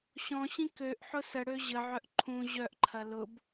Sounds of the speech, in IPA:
ɕɔ̃ɕĩ køʔ ħʊsəɽø ʑəʕœʔ ǃʰũ ʑœʔǃʰɐ lʊb

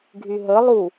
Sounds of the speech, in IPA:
ɡʱyɦə lˠu

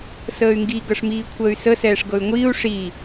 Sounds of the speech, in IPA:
səːy̯ŋɡi ɡɤʂmiːkʷʰəːy̯sə sɛːʂɡɤy̯ŋʷiːu̯ ʂiː

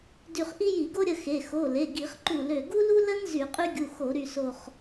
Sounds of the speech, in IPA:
dy˧˩χʔi˥ ji˧˩˧ɡo˥ɾʲə˩˧˩ xe˩˧˩ xo˩˧˩le˩˧˩ ɡi˧˩˧χǃu˧˩ lø˧˩ ɡu˥lu˥lə˥n zy˧˩˧qʼy˥ɡʲu˩˧˩xo˧˩˧ ɾy˧˩so˧˩χ

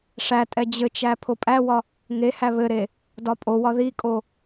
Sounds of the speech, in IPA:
ʂætʼɛ d͡ʑɘt͡ʃæ pʰopʼæwɒ | ŋehæ βɘɾe | dɒpʼowɒ ðikʼo

